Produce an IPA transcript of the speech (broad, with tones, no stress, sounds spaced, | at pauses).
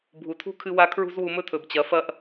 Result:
bʱ u˨ tʰ ṳ˦ kʰ ɨ˧ w a˧ kʰ ɹ ṳ˦ z w u˧ m ɵ˦ tʰ ɵ˨ b t͡ɕ ɐ˨˦ f ɐ˦ ʔ